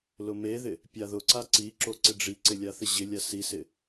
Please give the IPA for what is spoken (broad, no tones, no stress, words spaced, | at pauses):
lʊmeðɪ | pʲaðʊǀa ǀiǁo ǀɪɖ͡ʐiǀɪ lʲaθɪʑɪlʲa sisɪ